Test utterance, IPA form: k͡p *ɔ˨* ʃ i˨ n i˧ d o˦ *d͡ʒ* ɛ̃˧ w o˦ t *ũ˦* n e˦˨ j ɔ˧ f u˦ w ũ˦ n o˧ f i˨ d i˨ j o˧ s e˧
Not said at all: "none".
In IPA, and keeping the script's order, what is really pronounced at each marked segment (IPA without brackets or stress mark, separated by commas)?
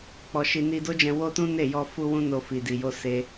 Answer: ɔ˨, d͡ʒ, ũ˦